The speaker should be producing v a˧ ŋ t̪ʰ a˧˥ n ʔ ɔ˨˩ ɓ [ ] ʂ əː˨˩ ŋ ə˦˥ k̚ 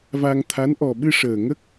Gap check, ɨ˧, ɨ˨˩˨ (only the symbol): ɨ˧